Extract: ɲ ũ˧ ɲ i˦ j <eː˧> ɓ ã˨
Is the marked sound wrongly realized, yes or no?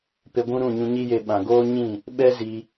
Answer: yes